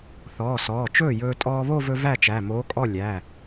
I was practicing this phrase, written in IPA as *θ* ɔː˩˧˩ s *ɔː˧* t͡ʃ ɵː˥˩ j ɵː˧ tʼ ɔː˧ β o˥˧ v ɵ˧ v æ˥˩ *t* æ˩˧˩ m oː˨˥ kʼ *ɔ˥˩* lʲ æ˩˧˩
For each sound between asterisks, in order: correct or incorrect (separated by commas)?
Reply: correct, incorrect, incorrect, correct